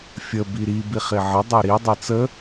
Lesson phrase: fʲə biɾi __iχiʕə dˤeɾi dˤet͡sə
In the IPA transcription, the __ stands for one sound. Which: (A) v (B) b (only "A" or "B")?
B